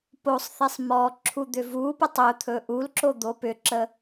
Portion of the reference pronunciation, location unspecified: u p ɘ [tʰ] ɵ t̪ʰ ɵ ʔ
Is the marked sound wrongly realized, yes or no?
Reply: yes